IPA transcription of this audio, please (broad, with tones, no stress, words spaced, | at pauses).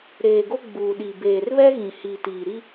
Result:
ɾeː˨ɡo˦ ɡ͡buː˨ɗi˨ beː˨rβɛ˦ ɣĩ˨ hiː˨tiː˨ɾi˦